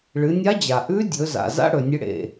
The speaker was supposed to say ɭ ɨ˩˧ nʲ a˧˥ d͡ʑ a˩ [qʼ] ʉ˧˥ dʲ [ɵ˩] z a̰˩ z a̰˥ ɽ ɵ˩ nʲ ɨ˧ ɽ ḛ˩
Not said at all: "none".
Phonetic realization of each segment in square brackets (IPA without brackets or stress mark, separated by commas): ʔ, ɵ˩˧